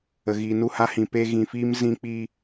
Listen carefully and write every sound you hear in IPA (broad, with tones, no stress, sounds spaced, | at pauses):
ə˨ ɣ iː˨ n u˦˨ h a˦ h ĩ˨ p e˧ ɣ ĩ˨ f iː˦ m z ĩ˧ k͡p iː˧